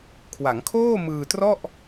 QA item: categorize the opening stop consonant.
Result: aspirated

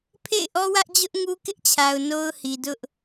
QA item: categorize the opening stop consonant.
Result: aspirated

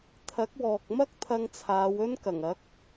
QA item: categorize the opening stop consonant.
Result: aspirated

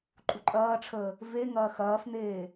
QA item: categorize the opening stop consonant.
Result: click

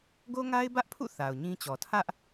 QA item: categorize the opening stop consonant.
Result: plain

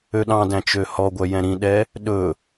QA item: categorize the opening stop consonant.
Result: implosive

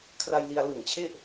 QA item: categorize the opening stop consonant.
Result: aspirated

